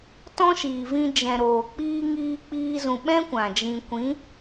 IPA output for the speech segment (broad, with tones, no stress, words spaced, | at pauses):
tɔ̃˦ʃiː˨vĩ˧ d͡ʒɛ̃˨ ɾoː˨k͡piː˦ ŋiː˧k͡piː˧zũ˨ɓɛ̃˦ kʷã˨d͡ʒĩ˧ kʷĩ˨˦